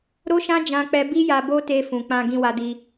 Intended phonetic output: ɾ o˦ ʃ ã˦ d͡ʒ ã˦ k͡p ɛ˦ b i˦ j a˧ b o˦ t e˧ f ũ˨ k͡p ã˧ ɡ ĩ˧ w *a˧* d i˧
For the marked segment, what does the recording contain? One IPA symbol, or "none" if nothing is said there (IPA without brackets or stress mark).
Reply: a˧